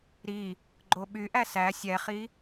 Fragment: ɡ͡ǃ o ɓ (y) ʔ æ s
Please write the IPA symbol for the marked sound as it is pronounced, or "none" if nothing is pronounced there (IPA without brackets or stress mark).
y